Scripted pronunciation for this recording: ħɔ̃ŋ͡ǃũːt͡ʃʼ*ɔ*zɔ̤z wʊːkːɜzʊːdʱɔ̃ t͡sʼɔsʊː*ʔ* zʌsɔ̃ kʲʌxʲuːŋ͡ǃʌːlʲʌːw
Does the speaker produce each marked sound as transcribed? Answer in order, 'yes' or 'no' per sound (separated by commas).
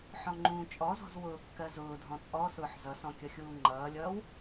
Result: yes, no